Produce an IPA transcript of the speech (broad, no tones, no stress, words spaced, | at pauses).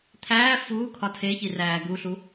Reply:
t̪ʰæː fuː kʰɒtʰeçi ræːɡuɬu